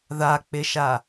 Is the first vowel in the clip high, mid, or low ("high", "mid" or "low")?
low